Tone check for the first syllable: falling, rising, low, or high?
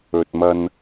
low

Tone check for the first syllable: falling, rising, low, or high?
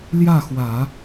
falling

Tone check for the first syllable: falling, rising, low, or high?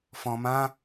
low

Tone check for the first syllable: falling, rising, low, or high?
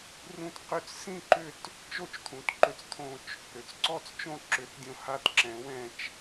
falling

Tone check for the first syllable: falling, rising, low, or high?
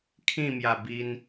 falling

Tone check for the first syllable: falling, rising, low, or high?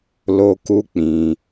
high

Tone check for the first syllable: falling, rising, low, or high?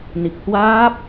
low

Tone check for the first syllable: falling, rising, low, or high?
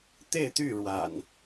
falling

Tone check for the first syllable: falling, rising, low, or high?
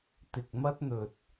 low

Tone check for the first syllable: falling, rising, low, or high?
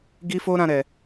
high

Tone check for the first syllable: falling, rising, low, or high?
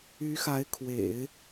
rising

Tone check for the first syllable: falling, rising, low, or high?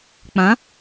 rising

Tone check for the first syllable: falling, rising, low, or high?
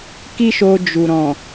high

